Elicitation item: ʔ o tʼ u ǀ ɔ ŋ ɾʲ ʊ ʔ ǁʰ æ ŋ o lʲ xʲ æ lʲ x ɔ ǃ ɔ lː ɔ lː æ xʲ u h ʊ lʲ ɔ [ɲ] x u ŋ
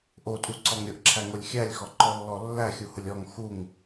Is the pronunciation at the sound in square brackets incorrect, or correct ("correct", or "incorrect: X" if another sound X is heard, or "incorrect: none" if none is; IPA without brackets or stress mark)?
incorrect: ŋ